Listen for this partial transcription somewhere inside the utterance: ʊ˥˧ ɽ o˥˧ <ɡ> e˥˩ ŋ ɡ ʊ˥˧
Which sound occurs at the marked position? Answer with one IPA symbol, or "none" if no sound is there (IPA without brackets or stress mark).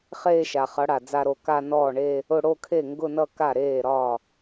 kʰ